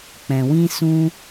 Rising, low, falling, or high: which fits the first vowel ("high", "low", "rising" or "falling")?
low